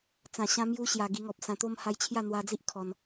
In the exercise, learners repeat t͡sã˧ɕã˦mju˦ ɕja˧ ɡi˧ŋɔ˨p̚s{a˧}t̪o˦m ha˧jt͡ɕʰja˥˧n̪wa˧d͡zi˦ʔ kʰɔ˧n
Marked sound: incorrect: ã˧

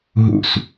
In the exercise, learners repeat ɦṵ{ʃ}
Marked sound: incorrect: s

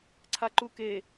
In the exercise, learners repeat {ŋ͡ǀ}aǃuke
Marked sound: incorrect: ǀʰ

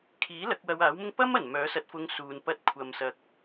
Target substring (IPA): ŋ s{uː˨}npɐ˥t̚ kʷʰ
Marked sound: correct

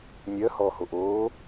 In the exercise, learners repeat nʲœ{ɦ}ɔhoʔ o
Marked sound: incorrect: h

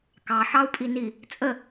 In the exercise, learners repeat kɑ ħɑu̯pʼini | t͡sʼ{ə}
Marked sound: correct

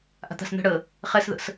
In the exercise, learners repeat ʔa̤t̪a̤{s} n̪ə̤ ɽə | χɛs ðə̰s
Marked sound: correct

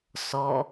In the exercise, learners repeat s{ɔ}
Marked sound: correct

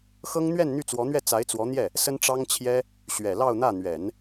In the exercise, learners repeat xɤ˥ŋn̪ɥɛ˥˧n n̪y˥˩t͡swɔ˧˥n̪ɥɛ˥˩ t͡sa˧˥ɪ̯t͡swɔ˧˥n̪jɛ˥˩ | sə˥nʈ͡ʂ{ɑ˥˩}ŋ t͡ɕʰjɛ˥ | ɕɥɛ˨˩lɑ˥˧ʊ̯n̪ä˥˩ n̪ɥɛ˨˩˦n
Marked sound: incorrect: ɑ˥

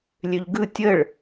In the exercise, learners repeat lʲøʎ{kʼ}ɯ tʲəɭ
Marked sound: incorrect: ɡ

